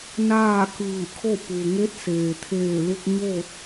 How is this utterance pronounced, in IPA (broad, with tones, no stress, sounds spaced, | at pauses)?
n aː˥˨ k ɯː˧˩ kʰ o˥˨ p u˩ ŋ e˧˥ t̚ s eː˩ t̪ʰ eː˧˩ l u˧ k̚ ɲ oː˥˨ t̚